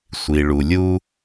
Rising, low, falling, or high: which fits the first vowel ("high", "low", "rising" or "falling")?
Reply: low